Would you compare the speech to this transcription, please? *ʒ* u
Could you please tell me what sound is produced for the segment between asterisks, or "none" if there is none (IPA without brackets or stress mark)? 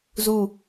z